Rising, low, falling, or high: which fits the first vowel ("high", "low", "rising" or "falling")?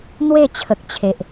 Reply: falling